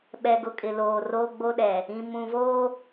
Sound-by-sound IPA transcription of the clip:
ɓ ɛ˨ ɡ ʊ˨ kʼ ɪ˨ l oː˨ r oː˦ ɡ͡b o˦ ɗ ɛ˨ | ĩ˨ m ũ˨ v oː˦

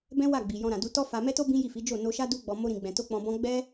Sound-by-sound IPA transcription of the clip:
b ɛ̃˦ w a˦˨ ɡ͡b i˨ j ɔ̃˧ ɾ ã˨ d u˧ t ɔ˦ f a˧ m ɛ˦ t o˦ b ĩ˦ j i˦˨ f i˨˦ d͡ʒ o˦˨ n o˧ ʃ a˦ d u˦ ɡ͡b ɔ˧ m o˦ ɾ ĩ˧ ɡ͡b ɛ̃˧ t o˦ k͡p ɔ̃˧ b ɔ̃˦ ɡ͡b ɛ˦

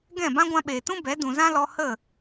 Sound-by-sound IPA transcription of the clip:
ɡ ɛ̃˦˨ b ã˦ ɡʷ ã˧ ɓ eː˨ t ũ˦ b ɛ˨˦ d ũ˨ z ã˦ l ɔ˧ h ə˦˨

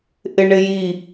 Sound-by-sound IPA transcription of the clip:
ʔ ɪ ɳ ɪ j i

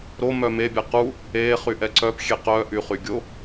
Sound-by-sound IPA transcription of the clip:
ɾ o m œ m e bʲ ɛ q u | e χ y ʔ ɛ ǀ œ p xʲ e q œ ʔ y χ y ɡʲ o

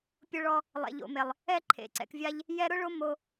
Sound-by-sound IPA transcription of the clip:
pʲ ʊ˧ ɭ ɔ˧ | lˠ ɛ̰˨ ʎ o̰˨ m e˨ lˠ | ɛ˧ ǃʰ ḛ˨ ǀ ɛ̰˨ k vʲ a˧ ʎ | j ɛ˦ ɾ ʊ˦ ɭ o˦ m o˧

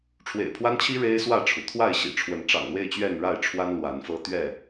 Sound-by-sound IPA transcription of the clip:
ʈ͡ʂʰ w ḛ˨˩ ɪ̯ pʰ w a˦ n t͡ɕʰ i˦ ɻ e˦ ɪ̯ s w ä˥˨ ʈ͡ʂʰ u˩ t̪ʰ w a˥˨ ɪ̯ ɕ ḭ˨˩ ʈ͡ʂʰ w ə˨˦ n ʈ͡ʂ ɑ̰˨˩ ŋ l w e˥˨ ɪ̯ t͡ɕ ɥ ɛ˥˨ n ɻ a˥˨ ɪ̯ ʈ͡ʂʰ w a˦ n l w a˨˦ n f ɤ˦ t̪ ɥ ɛ˥˨

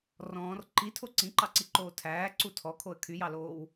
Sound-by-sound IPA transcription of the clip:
r ɔ̃ː r ǃ i tʰ o ǀ ĩ ǃ ɑ ǀ i ǃ oː tʰ æː ǀ u tʰ ɔ kʰ o ə̯ kʰ y j ɑ l oː w

